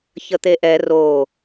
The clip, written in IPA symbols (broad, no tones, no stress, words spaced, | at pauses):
çət̪eʔɛ ro